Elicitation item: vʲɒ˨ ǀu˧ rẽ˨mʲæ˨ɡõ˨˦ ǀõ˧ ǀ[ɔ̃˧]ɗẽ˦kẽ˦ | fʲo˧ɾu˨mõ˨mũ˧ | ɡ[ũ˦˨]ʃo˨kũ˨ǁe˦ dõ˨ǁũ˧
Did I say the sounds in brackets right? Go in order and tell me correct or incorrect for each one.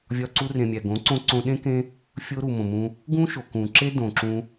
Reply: incorrect, incorrect

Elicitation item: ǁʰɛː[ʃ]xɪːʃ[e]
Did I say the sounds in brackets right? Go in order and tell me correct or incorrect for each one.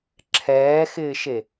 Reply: incorrect, correct

